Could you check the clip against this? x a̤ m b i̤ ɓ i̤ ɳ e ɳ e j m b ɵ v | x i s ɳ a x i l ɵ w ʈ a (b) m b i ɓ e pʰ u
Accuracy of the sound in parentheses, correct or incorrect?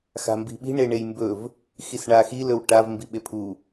incorrect